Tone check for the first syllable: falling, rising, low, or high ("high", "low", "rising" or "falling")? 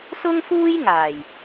high